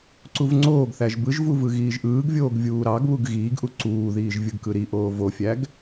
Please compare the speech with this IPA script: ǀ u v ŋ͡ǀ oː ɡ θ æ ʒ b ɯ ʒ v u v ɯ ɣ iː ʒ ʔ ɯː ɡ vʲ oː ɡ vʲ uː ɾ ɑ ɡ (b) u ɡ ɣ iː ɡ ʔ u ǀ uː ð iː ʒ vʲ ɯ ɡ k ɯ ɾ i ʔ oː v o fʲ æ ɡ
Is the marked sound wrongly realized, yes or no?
yes